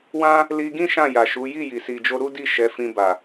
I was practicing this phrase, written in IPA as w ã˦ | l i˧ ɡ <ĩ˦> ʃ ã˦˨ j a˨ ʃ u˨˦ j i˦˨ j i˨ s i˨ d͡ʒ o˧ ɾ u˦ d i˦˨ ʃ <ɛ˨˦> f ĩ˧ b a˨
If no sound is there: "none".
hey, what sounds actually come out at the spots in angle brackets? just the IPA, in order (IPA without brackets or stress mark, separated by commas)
ĩ˦, ɛ˨˦